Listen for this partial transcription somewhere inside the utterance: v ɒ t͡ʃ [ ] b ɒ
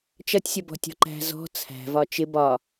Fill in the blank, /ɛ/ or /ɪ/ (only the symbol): ɪ